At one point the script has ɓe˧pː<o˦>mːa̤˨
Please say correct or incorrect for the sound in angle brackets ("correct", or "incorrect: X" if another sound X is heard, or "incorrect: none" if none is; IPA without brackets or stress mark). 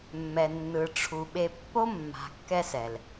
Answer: correct